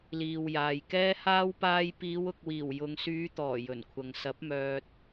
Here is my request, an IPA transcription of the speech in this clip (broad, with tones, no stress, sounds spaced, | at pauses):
l iː˨ w j aː˨ j k ɛː˥ h aː˥ w p aː˧ j p iː˨˧ w ʊ˨ k̚ w iː˨˩ w j ʊ˨ ŋ s yː˨˧ t̪ ɔː˨˩ j ɵ˨˩ n kʷʰ ɐ˨ ŋ s ɐ˨˥ p̚ m œː˧ t̚